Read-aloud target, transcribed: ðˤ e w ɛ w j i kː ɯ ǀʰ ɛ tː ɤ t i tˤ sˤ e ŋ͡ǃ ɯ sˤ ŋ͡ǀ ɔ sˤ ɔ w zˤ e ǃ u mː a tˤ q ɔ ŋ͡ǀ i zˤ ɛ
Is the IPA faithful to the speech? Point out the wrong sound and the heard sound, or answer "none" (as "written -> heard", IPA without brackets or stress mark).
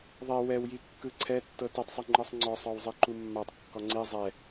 q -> kː